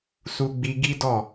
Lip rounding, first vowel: rounded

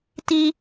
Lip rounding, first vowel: unrounded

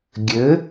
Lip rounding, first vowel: unrounded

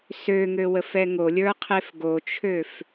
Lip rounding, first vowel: rounded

